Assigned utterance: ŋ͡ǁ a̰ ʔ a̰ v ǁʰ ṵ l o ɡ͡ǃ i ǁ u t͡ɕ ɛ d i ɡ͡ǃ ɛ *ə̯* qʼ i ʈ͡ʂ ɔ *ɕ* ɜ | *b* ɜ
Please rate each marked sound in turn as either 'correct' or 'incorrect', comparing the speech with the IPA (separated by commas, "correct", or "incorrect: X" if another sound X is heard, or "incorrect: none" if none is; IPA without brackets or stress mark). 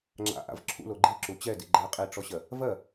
incorrect: ɪ̯, correct, incorrect: v